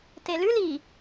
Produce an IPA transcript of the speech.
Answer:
t e l ʉ l i

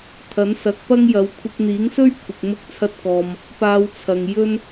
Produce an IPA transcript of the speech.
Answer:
t̪ʰ ɐ˨˥ n s ɐ˨˥ k̚ p ɐ˥ ŋ j ɐ˨˧ w kʷʰ ɪ˧ k̚ n̪ iː˨˥ ŋ s ɵ˥ ɥ kʷʰ ɪ˨ k̚ m ʊ˥ k̚ t͡sʰ ɐ˥ t̚ k ɔː˧ m | p aː˧ w t͡sʰ ɐ˨ ŋ j ɵ˥ n

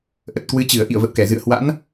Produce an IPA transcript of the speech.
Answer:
ʔ ə˨˩ t̚ k w ɨ˨˦ t͡ɕ ɨ˧˩ ə̯ ʔ ḭ˧˨ ə̯ v ə̰˧˨ w k ɛ˧˩ z ɨ̰˧˨ ə̯ h w a̰˧˥ n

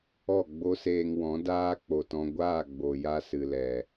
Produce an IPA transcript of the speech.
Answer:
ɔ˦˨ ɡ͡b o˦ s eː˧ ŋ w ɔ̃˨˦ d aː˦ k͡p o˨ t ɔ̃˧ ɡʷ aː˦˨ ɡ͡b o˨ j a˧ s ɨ˨ l ɛ˨

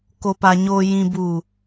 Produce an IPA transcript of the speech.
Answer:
k o˨ p a˨ ɲ o˨ j ĩ˨ b uː˨

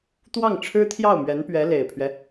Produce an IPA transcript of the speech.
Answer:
t̪ w ɑ˥˩ ŋ ʈ͡ʂʰ ɻ̩˥ t̪ʰ j ɑ˥˩ ʊ̯ m ɥ ɛ˧˥ n p ɥ ɛ˧˥ l e˨˩ ɪ̯ pʰ ɥ ɛ˦

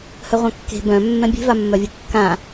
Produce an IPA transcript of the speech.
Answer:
h œ ʁʷ ã kː e̤ b œ̃ mː ɛ̃ bʲ e̤ v a mː œ vʲ ɨ kː ã

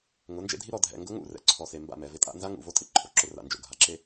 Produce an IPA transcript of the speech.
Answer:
ŋ ʊ˨˦ n d͡ʒ ḛ˦ dʱ i˦ ɾ ɔ˨ dʱ ɛ̰˨ ŋ ɡ ʊ˦ ŋ ṵ˦˨ r ɛ̰˨ ǀʰ ɔ˨ s e˨ m b a̰˦˨ m ɛ˨ v ɪ˦ tʼ a̰˦ n z a˦ ŋ ṵ˨ v o˦ tʼ ɪ˨ ǃʰ o˨ ǁ ʊ˦ r a̰˨ n d͡ʒ o̰˨ ɡʱ a˨ ǁ e˦

